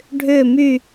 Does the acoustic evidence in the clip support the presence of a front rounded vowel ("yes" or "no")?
yes